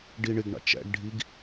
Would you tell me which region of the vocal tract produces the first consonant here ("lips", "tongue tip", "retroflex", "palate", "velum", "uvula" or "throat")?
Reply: retroflex